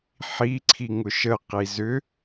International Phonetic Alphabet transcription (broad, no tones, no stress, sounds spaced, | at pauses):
ħ i ǀʰ i ŋ ʊ ʃ ə q i z ʏ